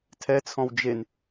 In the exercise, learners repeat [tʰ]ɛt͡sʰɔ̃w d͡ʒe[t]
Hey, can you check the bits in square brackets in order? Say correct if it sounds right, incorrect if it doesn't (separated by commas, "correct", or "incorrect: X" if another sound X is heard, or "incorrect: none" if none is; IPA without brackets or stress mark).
correct, incorrect: n